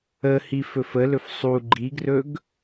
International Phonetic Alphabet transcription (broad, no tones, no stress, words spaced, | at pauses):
əhi fɵfəlɵf sˤu ɡ͡ǃiɡrɵɡ